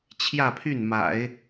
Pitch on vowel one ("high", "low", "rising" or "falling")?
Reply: falling